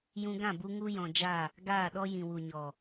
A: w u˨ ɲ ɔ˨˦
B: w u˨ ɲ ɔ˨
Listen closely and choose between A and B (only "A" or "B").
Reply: B